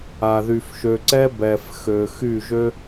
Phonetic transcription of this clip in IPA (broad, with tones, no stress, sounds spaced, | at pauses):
a˨ ð y˨ f ʃ ø˨ ǀ ɛ˦ b ɛ˨ f x ø˨ x y˦˨ ʒ ø˦